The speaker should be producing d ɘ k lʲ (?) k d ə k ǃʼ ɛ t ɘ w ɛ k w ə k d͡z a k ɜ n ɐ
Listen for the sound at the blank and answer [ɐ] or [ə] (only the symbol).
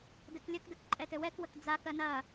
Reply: ə